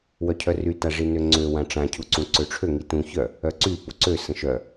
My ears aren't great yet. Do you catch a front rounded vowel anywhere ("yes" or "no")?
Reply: yes